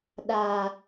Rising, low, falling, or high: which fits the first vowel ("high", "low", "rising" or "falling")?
low